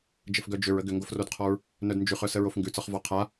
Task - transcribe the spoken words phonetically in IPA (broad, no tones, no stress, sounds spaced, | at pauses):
d͡ʒ ə f ɡ œ d͡ʒ ʏ ɹ ə ɡ ʏ ŋ ɡ o f r o d qʰ ɔ ɹ | n œ d n d͡ʒ ʉ χ œ s ə ɹ o f ŋ ɡ ʉ t͡s ɒ χ v ɒ qʰ a